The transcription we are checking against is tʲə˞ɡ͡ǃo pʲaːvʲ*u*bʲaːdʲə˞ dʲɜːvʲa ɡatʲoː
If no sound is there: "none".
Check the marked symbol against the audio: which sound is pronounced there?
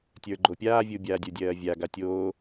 u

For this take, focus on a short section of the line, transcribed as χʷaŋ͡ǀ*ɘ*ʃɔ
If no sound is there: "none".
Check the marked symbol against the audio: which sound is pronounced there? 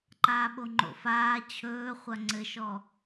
ɘ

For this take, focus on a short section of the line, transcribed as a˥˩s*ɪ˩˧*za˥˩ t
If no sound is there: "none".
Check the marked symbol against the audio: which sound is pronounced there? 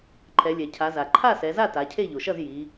ɛ˩˧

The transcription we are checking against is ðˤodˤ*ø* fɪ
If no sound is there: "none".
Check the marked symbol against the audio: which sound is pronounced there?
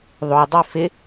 ø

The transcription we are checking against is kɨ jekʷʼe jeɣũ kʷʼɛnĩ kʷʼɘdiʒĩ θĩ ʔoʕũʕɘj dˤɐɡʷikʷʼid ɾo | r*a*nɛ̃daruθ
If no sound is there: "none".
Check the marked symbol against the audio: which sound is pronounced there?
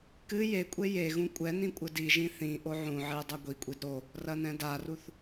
ɐ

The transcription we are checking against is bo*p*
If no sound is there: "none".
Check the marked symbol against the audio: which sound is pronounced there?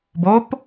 p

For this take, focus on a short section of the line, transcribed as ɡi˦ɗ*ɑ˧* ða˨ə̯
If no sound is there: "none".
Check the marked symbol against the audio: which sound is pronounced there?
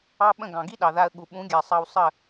ɑ˨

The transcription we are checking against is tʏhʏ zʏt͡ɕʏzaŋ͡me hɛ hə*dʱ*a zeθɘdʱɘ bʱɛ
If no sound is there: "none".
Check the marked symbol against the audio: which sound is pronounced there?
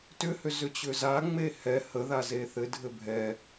ð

